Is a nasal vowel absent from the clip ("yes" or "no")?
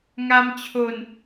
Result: yes